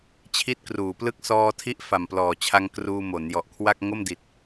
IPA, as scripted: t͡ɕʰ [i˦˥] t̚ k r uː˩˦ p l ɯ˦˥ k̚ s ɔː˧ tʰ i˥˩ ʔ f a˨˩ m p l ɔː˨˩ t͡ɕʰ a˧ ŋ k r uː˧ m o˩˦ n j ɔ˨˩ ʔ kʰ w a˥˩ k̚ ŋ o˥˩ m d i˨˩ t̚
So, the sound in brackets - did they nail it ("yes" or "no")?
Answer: yes